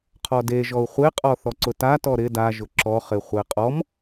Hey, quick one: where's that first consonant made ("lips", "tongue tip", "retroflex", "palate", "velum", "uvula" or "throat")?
uvula